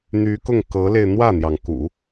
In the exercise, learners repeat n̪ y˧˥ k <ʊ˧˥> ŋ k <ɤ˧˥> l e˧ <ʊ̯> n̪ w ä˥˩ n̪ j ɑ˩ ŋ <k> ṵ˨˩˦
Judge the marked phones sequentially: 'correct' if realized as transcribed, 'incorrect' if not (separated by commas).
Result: incorrect, correct, incorrect, correct